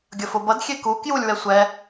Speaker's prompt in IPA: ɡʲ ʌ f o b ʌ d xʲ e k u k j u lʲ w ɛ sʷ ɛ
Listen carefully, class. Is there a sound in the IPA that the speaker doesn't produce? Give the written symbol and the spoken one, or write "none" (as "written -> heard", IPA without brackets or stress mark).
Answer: none